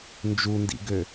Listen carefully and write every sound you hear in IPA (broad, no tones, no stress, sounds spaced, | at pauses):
n d͡ʒ u n d ḭ ɡ ø